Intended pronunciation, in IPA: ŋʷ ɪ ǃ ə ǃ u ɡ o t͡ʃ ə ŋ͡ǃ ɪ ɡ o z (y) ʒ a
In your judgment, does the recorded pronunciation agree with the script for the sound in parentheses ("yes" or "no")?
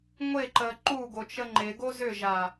no